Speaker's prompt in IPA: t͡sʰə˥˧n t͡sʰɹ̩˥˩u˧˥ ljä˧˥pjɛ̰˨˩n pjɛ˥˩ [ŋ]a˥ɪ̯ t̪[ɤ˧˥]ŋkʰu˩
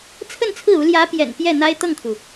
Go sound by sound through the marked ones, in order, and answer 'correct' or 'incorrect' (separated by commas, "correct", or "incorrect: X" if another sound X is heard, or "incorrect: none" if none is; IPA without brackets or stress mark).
incorrect: n̪, incorrect: ɤ˥˩